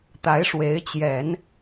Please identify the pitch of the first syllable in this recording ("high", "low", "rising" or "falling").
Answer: rising